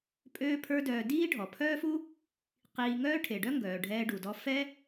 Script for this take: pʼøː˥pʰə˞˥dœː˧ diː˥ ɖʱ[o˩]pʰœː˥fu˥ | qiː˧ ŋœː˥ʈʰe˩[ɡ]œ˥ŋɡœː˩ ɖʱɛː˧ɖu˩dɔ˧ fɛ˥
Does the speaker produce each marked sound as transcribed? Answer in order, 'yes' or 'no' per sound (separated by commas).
no, no